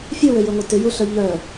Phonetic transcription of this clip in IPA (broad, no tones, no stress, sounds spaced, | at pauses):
fʲ ø w ø j ø ŋʷ ɐ t ʏ j u ɬ œ ʎ œ